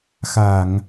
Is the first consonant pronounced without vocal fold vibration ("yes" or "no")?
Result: yes